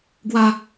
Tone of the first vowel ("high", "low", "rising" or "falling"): high